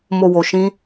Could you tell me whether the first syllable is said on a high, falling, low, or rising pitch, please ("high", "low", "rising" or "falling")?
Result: low